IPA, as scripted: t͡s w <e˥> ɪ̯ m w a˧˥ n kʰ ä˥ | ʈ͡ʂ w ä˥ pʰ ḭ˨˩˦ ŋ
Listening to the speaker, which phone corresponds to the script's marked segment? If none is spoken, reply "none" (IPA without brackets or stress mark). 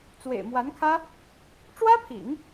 ḛ˨˩